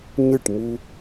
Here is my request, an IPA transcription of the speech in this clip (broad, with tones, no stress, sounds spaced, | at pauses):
ɲ ɨ˦˨ ʈ m u˧